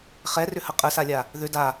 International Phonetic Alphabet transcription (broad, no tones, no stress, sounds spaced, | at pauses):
χ ɛ r ʏ h ə qʼ ə s a lʲ a | ð ʏ d a